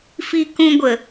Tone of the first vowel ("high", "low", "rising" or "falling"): high